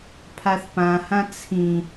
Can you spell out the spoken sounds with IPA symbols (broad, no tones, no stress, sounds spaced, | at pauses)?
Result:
pʰ a θ p ã h ã t͡sʰ ĩ